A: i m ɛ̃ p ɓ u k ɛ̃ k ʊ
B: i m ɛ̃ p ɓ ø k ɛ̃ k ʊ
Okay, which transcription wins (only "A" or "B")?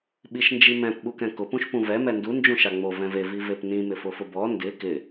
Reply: A